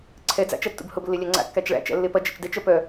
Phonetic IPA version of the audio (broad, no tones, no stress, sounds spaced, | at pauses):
ǀʰ ɛ d͡z a̰ t͡ʃ ɐ tː ṵ b h ʊ b lː e lʲ æ ŋ͡ǀ a̰ kː æ t͡ʃ ɭ æ̰ t͡ʃ æ̰ lː e p ɐ d͡ʒ ɐ t͡ʃ d ɛ t͡ʃ œ p œ